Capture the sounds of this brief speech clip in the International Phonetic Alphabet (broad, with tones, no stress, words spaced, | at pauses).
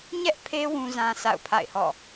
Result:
ɲɛ˦ʔpʰe˦ wũ˦zã˦ sa̰˦˨ʊ̯pʰa̰˦˨ɪ̯hɔ̰˦˨